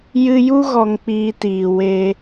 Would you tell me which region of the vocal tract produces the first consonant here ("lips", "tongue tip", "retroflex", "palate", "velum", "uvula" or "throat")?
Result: palate